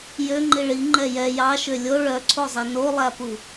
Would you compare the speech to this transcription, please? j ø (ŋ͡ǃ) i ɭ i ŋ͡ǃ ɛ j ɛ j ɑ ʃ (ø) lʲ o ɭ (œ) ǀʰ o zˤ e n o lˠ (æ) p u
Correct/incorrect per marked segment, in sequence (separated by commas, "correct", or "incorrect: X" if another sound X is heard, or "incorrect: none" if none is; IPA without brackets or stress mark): correct, correct, correct, correct